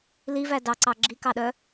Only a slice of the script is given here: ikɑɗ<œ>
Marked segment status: correct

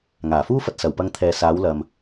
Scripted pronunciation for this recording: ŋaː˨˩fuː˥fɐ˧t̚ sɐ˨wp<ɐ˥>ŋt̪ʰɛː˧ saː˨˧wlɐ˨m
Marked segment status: correct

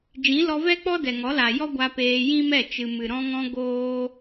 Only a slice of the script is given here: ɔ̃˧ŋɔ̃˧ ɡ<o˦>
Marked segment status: incorrect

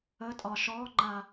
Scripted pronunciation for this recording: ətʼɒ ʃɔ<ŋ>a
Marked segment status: incorrect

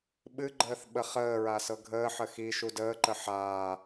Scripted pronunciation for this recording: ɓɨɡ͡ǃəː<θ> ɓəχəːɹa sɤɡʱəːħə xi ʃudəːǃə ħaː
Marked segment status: correct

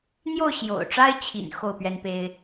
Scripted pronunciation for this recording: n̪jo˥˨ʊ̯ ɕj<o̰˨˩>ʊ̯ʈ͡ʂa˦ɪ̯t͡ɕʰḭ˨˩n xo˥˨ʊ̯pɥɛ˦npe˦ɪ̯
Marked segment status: correct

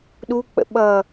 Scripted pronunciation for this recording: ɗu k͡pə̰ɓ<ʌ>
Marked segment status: correct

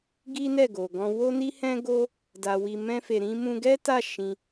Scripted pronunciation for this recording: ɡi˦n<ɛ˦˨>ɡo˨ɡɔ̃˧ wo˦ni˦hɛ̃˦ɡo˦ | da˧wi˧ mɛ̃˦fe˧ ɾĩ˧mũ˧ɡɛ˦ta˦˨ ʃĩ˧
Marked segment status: correct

